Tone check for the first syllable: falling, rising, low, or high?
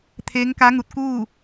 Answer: rising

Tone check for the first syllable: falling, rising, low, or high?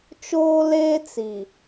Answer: high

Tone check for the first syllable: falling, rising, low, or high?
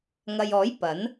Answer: low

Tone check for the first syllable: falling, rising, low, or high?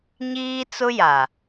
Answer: high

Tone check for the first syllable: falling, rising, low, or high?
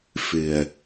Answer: low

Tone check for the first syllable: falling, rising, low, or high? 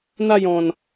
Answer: falling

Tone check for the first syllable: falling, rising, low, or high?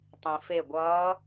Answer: low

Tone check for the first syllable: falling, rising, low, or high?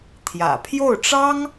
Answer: low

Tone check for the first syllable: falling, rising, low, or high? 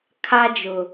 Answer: high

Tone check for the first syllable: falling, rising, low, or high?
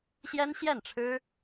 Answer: high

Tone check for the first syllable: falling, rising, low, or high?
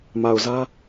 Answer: low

